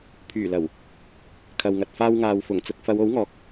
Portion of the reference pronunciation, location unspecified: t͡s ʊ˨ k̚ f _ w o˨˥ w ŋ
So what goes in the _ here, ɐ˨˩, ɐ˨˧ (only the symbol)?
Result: ɐ˨˧